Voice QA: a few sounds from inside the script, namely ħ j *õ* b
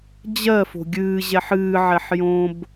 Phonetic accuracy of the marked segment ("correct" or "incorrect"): correct